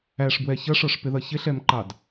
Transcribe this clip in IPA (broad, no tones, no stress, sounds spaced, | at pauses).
æ ʂ b w ɛ ç ʌ ʂ ɔ ʂ p ɪ ð ʌ ç ɪ ɬ ɛ m ǃ ɑ d